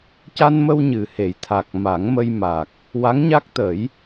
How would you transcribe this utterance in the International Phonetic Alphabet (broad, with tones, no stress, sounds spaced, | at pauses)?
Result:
c a˧ n m ə˧ w ɲ ɨ˨˩ h e˨˩˦ j t̪ʰ a˨˩ k̚ m a˨˩˦ ŋ m ə˧ j m a˨˩ k̚ | w a˧˥ ŋ ɲ a˦˥ k̚ t̪ ə˨˩˦ j